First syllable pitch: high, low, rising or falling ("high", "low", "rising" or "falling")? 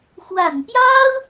low